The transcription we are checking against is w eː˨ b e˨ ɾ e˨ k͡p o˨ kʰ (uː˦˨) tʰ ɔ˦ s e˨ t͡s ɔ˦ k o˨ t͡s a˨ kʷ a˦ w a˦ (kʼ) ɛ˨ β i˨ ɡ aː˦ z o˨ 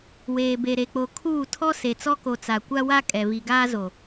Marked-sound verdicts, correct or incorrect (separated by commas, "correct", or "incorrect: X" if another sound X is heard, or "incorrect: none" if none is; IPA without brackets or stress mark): correct, correct